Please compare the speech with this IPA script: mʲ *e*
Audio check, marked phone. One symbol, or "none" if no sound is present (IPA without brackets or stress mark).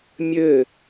ɘ